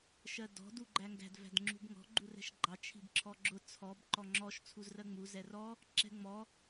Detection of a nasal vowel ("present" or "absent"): absent